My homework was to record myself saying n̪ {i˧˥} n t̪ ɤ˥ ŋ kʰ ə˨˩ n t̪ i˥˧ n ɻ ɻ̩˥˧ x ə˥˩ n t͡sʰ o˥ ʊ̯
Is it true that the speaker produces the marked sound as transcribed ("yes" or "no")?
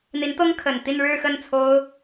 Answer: yes